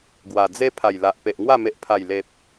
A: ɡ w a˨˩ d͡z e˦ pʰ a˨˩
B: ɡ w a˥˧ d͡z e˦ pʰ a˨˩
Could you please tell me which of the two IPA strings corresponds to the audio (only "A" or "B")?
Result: A